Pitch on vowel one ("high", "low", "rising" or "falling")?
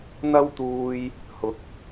high